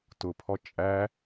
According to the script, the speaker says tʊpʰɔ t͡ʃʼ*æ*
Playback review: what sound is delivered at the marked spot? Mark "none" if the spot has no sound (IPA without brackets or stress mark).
æ